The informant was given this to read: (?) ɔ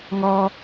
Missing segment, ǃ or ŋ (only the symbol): ŋ